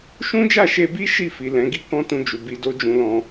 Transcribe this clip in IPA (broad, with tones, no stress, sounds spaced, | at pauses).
ʃ ũ˦ d͡ʒ a˦˨ ʃ e˧ b i˦ ʃ i˦˨ f i˨ l ɛ̃˨˦ ɡ i˦ k ɔ̃˦ t ũ˧ d͡ʒ u˨ b i˧ d o˦ d͡ʒ ũ˧ l ɔ̃˧